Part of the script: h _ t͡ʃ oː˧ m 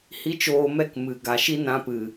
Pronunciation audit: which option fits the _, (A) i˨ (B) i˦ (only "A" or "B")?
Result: B